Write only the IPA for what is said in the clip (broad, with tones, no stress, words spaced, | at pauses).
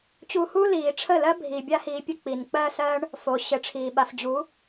t͡ɕu˧huː˦ liː˨ʈ͡ʂʰə˦˨lɜ˦bʱi˨ bʲa˦hiː˧pʲɵ˦˨ k͡piː˨nk͡pɜː˦sɜː˦ɳ | fo˨ɕɘ˨˦ʈ͡ʂʰiː˨ ɓa˨fd͡ʑu˨˦